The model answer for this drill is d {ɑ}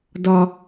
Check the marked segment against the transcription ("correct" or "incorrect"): incorrect